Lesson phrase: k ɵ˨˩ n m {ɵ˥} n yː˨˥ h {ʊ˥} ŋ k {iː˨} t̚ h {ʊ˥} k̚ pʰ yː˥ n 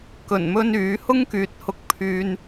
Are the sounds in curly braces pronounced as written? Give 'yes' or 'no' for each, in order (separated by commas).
yes, yes, no, no